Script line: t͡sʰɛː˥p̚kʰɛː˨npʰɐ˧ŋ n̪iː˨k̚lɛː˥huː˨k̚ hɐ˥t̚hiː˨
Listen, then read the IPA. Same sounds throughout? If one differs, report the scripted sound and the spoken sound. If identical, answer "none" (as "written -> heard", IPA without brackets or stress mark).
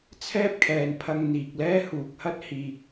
none